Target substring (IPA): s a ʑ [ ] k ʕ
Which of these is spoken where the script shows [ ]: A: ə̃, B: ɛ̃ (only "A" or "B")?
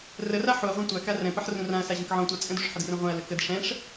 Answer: A